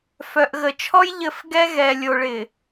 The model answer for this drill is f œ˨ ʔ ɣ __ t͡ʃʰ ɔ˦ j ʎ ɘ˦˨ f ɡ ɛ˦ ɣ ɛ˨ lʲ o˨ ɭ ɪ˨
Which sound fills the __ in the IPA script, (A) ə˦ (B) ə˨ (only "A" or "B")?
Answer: B